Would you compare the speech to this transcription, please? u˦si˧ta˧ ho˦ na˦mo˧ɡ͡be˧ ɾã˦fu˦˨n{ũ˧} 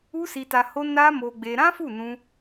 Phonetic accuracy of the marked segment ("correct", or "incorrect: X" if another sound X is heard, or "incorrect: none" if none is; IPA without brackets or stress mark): correct